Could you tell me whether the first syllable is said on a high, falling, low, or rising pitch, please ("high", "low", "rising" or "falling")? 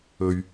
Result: low